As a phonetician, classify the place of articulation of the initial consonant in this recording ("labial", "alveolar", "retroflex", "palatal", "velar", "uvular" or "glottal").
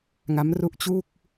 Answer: velar